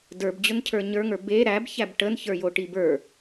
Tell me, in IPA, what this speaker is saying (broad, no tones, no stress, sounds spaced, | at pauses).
d ə˞ b d͡ʑ ʊ n cʰ ə˞ ɲ ə˞ ŋ ə˞ b e ɾ æ b ç æ b ʈ ə n ç ə˞ j o ʈ i b ə˞